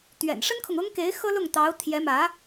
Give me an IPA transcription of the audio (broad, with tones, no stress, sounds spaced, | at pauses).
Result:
t̪ ɥ ɛ̰˨˩ n ʂ ə˥ n kʰ ʊ˨ ŋ ʊ˥ ŋ k e˧˥ ɪ̯ x ɤ˥ l ʊ˥˩ ŋ t̪ ɑ˧˥ ʊ̯ t̪ʰ j ɛ˧˥ m ä˧˥